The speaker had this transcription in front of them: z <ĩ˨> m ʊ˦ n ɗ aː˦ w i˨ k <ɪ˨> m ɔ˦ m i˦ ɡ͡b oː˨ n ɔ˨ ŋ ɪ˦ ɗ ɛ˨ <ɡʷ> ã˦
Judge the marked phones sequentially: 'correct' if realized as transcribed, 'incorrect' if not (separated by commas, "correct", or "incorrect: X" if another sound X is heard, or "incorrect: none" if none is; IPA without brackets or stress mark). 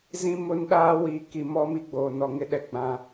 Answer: incorrect: ĩ˦, incorrect: i˨, incorrect: ɡ͡b